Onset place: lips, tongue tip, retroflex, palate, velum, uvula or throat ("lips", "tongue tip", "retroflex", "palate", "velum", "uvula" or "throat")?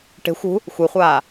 retroflex